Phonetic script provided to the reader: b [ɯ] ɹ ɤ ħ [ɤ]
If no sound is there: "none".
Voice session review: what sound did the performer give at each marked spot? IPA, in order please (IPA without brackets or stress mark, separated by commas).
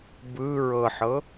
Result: ɯ, ɤ